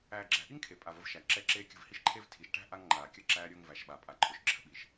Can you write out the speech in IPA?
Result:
æː˨ ɡ͡ǁ æ̤˨ ʔ i˦ ŋ kʰ e˨ pʼ a˨ v ə˦ v ʃ æ˨ ǁ ɛ˦ ǁ eː˦ kʲ ə̤˦˨ v h i˦ ʃ ǃʰ e˦ v tʰ i˨ ʃ ʈ æ̤˦ ʔ a˦ ŋ ŋ͡ǃ aː˨ kʲ ə˦˨ ǁ æː˦ ɾʲ ʊː˦ ŋ v æ˨ ʃ ɓ a˨ pʼ a˨ ǃʰ ʊ˨ ʃ ǁʰ ə̤˦ ɓ i˨ ʃ

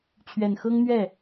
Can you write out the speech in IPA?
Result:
t͡ɕʰ ɥ ɛ˨˩ n x ɤ˥ ŋ n̪ ɥ ɛ˥˩

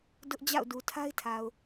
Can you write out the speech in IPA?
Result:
d ʊ˦ ʔ d͡ʑ a̰˦˨ ʊ̯ d u˨ tʰ a˦ ɪ̯ tʰ a˨ ʊ̯

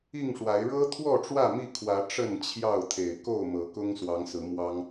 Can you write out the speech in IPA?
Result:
i˥˨ ŋ ʂ w a˨˦ ɪ̯ ɻ ɤ˦ t̪ʰ w ɔ˥˨ ʈ͡ʂ w ä˥˨ m i˥˨ kʰ w ä˨˦ ʈ͡ʂ ə˥˨ n t͡ɕʰ j ɑ˥˨ ʊ̯ t̪ʰ e˨˩ ɪ̯ k o˥˨ ʊ̯ m ɤ˨˦ k ʊ˦ ŋ s w ɑ˨˦ ŋ s ɹ̩˨˦ m w ɑ˦ ŋ

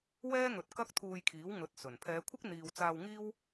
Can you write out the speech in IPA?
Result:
w ɛː˥ ŋ ɵ˨ t̚ k ɐ˥ k̚ t̪ʰ uː˧ j kʰ iː˨˥ w ŋ ɵ˨˥ t̚ s ɵ˨˩ n pʰ ɛː˨˧ kʷʰ ɪ˥ k̚ n̪ iː˧ w t͡s aː˧ w ŋ iː˥ w

